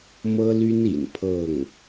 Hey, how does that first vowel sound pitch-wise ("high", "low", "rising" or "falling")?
high